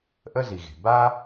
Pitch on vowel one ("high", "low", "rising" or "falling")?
high